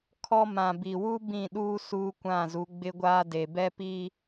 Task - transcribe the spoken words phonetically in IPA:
kʰɔ˦ mã˨bi˨wu˦ bĩ˦˨ɗuː˦ suː˦kʷã˦˨zu˨˦ ɡ͡bɪ˦ɡʷaː˦de˨ bɛ˦pi˦

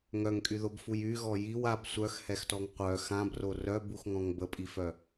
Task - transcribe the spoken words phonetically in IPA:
ŋœŋkʼyðobfuj yɣɔ jiw ab sʷœxhɛxtɔŋ qʷœ xãbro rœbuxŋɔ̃ŋ bəpʼifœ

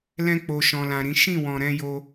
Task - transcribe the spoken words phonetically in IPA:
lɛ̃˧k͡po˨ ʃɔ̃˨lã˨ɾĩ˨˦ ʃĩ˦˨wɔ̃˨ ɾɛ̃˧jo˧

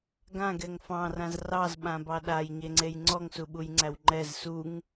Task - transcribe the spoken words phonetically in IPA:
ɡãɡɛŋ fɑ̃rãz rɑzɓãbɑ ɗajɲeŋ͡ǀej ŋ͡ǀɔŋsuɓujŋ͡ǀæw ŋ͡ǃɛz suŋ

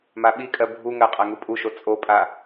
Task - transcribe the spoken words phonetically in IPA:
maɓikʼɜ bʱuŋɜ qʼaŋupʼuʃo t͡sʼopʼa

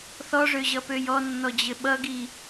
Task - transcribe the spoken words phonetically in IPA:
θɔʐøʑʌpøj ɔnːɔd͡ʑɘ ɓʌɡi

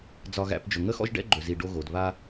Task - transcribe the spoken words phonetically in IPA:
d͡zɒ˦ɣæ̰˦p d͡ʒɵ˨ŋə˦xɔ̰˦ʒ ɖɛ̰˦ɡ͡ǃɵ˨zi˨ ɖo˦ɣo˨˦d βa˦

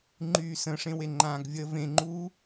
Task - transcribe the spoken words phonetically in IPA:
ŋ͡ǃyːsə̃ʂẽwe ŋ͡ǃãːɡvʲəːvẽŋ͡ǃuː

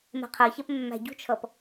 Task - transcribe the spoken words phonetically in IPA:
mɛ̤qʰɜçɛp mːæ̤ɟṳt͡ʃʰʌp

